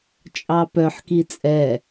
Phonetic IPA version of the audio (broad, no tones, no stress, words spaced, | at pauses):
t͡ʃʼɑpœħ kit͡sʼɛ